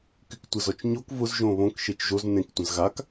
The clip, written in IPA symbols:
k y k tʷ ə z ɔ t͡ʃ ɲ o k v ʊ z ʒ õ β õ k ʃ e t͡ʃ ʒ o z n ẽ k tʷ ə̃ z ɣ a k

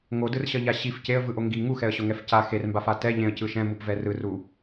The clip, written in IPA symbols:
ŋ o d ɯ r ɕ ʌ ʎ a ɕ i f c e ə̯ v ɯ ʔ o ŋ ɡ i ŋ u x ɛ ə̯ ɕ o ŋ ɛ f c a x e r m b a f a t ɛ ʎ ẽ ə̯ c ɯ ʃ ɛ̃ m u p v ɛ r ɯ r u

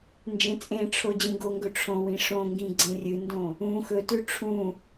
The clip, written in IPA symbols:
n d͡ʒ ẽ t͡sʼ ẽ ʈ͡ʂʰ o d͡ʑ ĩ ɡ o ŋ ɡ ɵ ʈ͡ʂʰ õ w ĩ ʂ õ ŋ ɡ ĩ ɡ͡ǀ ẽ rʲ ɨ n d õ | ũ x ɵ t ʉ ʈ͡ʂʰ ũ

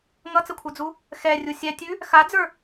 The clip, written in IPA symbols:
ŋ ʌ t͡s ə kʷʰ ə˞ d͡z u | x ɛ rʲ u sʲ ɛ tʲ ʉ | x a d͡z ə˞

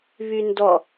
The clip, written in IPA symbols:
β y n d ɔ

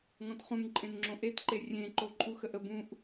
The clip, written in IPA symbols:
ŋ ɔ̃ t χ ũ ŋ ǃʼ ẽ n ŋ͡ǁ õ ʔ e t ǃ e rʲ ẽ ǃ o ǃʼ u x ə ʔ ə b ũ ʔ

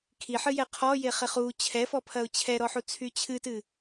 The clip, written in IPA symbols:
kʰ i ħ ɨ j ɛ qʰ ɔ j e χ e χ u t͡ɕʰ ɛ f ɔ pʰ ɐ ʊ̯ t͡ɕʰ ɛ ɾ ɔ ħ u t͡sʰ y t͡ɕʰ ɨ t ɨ

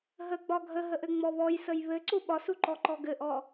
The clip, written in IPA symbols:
ɦ ə ɡ͡b ɒ ɡʱ ə ɦ ə ʔ ɘ ŋ͡m ɔ β ɔ j s ə j β ɘ ǀ u ɓ ɒ s u ǃ ɔ ǃ ɔ ɡ ɘ ʔ ɔ

